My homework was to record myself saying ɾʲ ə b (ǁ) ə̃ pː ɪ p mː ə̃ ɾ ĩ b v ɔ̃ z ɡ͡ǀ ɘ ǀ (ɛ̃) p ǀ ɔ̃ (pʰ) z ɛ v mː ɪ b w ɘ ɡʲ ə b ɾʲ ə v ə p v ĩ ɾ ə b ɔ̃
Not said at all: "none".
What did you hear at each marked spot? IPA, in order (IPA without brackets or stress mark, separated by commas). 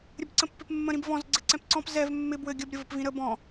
ǀ, ɛ̃, p